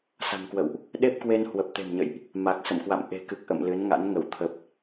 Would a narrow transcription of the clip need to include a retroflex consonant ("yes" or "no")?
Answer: no